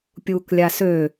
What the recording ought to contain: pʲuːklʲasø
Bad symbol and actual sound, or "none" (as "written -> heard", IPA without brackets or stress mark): none